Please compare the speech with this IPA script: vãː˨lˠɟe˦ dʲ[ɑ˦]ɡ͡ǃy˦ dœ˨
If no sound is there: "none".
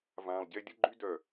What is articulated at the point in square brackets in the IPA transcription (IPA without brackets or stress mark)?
ə˦